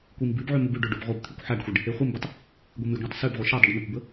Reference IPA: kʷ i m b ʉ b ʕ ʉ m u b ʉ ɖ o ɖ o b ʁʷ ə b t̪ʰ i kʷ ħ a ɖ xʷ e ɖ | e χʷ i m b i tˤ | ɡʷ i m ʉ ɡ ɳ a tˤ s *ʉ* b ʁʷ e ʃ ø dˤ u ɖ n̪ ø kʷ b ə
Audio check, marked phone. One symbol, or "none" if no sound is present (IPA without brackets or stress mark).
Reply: ʉ